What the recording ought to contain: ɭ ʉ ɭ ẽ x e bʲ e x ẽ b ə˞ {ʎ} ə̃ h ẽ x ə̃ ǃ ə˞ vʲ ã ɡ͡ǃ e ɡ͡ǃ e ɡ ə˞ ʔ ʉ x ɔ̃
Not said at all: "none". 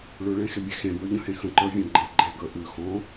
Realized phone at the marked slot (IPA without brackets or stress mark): ʎ